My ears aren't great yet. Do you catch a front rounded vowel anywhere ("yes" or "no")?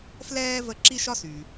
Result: yes